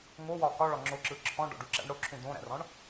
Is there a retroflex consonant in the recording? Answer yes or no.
yes